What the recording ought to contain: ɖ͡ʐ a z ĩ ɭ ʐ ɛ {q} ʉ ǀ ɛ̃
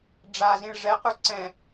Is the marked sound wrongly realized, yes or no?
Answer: no